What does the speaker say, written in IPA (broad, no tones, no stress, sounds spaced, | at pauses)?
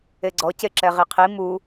e ɡ͡ǀ ɔ c e ǁ ɛ ʁ i qʰ i m u